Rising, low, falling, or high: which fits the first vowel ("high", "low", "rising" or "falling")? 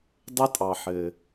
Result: high